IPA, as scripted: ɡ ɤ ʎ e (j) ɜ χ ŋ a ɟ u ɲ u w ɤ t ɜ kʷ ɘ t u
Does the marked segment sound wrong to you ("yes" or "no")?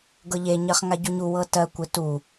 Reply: yes